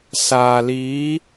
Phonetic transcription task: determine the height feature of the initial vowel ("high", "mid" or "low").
low